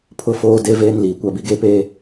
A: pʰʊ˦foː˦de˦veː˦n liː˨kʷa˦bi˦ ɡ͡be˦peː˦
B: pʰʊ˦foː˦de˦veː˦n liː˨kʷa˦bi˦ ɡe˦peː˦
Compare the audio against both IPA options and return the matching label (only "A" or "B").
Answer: B